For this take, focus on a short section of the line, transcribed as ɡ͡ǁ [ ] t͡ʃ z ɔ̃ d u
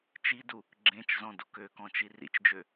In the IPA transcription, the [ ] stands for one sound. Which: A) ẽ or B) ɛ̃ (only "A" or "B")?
A